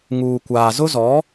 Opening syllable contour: low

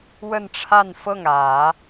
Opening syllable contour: falling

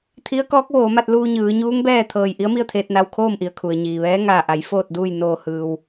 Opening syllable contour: rising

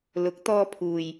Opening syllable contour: rising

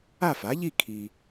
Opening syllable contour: falling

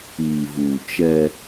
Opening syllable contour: low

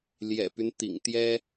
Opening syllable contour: low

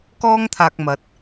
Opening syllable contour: high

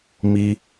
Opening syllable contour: high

